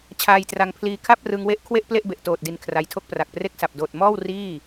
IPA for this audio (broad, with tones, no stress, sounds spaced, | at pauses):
t͡ɕʰ aː˧ j t r a˧ ŋ pʰ l iː˧ kʰ a˥˩ p̚ r ɯ˧ ŋ w e˦˥ ʔ kʰ w e˥˩ ʔ p l e˥˩ ʔ b e˨˩ ʔ t oː˨˩ t̚ d i˨˩ n kʰ r a˧ j tʰ o˥˩ k̚ p r a˨˩ k̚ p r e˥˩ k̚ s a˨˩ p̚ d oː˨˩ t̚ m ɔː˥˩ w r iː˥˩